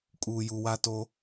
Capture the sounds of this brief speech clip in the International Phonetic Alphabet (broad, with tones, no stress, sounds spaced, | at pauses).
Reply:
kʼ uː˨ j u˨ w a˦ t o˦